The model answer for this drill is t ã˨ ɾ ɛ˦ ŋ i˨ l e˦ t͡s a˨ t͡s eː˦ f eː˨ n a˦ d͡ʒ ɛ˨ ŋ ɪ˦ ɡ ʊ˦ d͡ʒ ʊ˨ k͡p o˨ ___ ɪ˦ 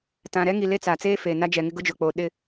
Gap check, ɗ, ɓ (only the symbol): ɗ